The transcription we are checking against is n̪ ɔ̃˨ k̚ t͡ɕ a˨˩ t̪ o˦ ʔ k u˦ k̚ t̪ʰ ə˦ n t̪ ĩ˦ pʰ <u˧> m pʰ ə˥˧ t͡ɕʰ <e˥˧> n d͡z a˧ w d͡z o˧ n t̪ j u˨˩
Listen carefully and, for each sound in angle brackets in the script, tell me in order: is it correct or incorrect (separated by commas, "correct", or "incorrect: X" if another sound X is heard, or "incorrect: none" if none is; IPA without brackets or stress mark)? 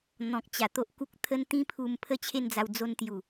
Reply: correct, correct